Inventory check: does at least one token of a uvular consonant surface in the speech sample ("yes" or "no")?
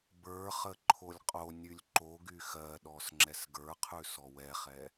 yes